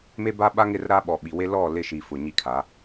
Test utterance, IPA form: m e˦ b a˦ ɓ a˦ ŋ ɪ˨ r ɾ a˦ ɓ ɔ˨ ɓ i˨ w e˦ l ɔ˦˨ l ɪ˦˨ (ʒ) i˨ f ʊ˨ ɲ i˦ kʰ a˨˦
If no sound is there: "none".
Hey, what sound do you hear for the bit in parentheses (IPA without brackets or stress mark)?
ʃ